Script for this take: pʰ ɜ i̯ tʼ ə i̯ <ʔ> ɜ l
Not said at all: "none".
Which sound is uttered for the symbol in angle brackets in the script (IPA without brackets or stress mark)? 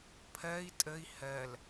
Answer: h